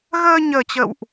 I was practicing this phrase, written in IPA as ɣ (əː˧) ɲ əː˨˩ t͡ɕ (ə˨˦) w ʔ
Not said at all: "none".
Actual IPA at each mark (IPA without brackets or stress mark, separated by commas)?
əː˧, ə̰˧˨